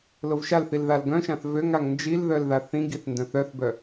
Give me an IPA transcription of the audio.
lovʃalθil ðalɡœ̃ʃãθ vøŋ aŋnd͡ʒilðœl ðaθĩɡiθ ndœ̃θœθbœ

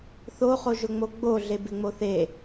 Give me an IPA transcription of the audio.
θoχoʒʊŋ͡mo ɡ͡boɮe bɪŋ͡moθe

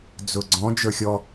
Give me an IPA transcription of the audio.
d͡zʊɡ͡ǀɔ̃ d͡ʒə˞xʲɔ

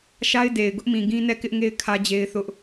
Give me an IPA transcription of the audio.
ʃa˦ɪ̯ de˨ɪ̯ ɡʊ˦ʔmĩ˨ɡĩ˦ nɛ˦˨kɪ˦ʔŋe˦ɪ̯ kʰä˦d͡ʑe˦ɪ̯θʊ˦ʔ

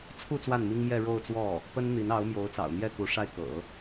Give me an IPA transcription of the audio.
t͡sʰu˥˧ t͡swa˥˩nmi˥ŋmjɛ˥˧ ɻo˥˧ʊ̯t͡swɔ˥˩ | pə˥nn̪i˧˥nɑ˧˥ʊ̯ mjo˧˥ʊ̯t͡sɑ̰˨˩ʊ̯n̪jɛ˥˩ku˧˥ ʂa˥˩ɪ̯kɤ̰˨˩˦

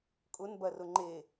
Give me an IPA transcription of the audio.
kʼʊnbɐrʊ ŋ͡ǃe

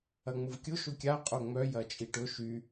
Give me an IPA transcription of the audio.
ɐŋ͡mʊvkʲʊ ʃʊkʲa qʼoŋ͡mœ jɐt͡ʃʼiʈʊ ʃy

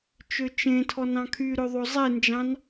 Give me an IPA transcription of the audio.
t͡ʃøt͡ʃẽtʰɔn ɑ̃kʰyɾø ðˤozˤend͡ʒɑ̃n

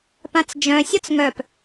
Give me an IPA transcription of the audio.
pãt͡sd͡ʒœ̃ sʲɔt͡sŋœp

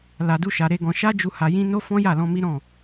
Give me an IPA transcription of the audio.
la˧du˦ ʃa˧ɾe˦ɡɔ̃˧ ʃa˦d͡ʒu˧ ha˧jĩ˦ no˦ fɔ̃˦ja˦˨lɔ̃˧ mi˦ɾɔ̃˦˨

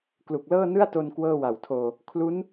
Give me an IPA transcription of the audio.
klu˨˩k̚lɤː˥˩nɯ˥˩a̯to˧n kwɤː˥˩wa˨˩wtʰoː˧ | kʰlu˦˥n

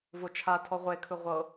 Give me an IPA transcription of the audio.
vot͡ʃʰatʰɔ ʁʷekʰɯ ʁʷɤ

